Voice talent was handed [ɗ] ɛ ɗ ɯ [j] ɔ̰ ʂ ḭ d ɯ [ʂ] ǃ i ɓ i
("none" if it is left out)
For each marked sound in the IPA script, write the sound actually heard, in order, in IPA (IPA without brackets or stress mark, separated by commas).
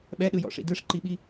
ɓ, j, ʂ